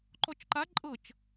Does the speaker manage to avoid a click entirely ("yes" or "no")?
no